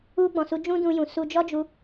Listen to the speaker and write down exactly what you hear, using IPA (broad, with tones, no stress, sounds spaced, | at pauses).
u˧ ɡ͡b ɔ̃˨ s u˨˦ d͡ʒ ũ˦ d ũ˧ j ũ˨ s u˧ d͡ʒ ɔ˦ d͡ʒ u˧